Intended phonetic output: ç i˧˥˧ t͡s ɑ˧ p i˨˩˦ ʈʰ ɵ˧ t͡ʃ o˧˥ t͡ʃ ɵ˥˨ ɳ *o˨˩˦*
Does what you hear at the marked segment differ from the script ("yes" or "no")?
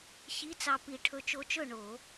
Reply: no